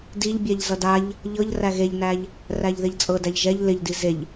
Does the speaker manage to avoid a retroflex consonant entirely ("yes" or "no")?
yes